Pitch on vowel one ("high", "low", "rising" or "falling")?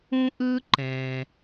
high